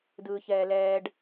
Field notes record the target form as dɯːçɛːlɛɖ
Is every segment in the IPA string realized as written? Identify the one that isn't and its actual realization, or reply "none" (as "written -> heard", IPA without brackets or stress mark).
ɛ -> ɛː